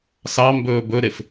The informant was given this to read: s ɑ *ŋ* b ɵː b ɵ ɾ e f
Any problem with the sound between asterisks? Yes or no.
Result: yes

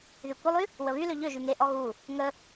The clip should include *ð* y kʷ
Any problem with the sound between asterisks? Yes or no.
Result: no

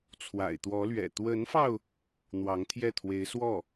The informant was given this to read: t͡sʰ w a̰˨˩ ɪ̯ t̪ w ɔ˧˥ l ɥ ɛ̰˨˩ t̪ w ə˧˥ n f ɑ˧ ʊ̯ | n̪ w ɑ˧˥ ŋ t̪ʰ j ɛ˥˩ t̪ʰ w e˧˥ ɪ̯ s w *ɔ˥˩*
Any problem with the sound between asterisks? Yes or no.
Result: no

